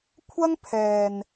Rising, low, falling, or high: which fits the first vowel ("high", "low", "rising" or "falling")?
high